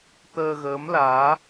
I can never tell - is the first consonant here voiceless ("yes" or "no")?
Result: yes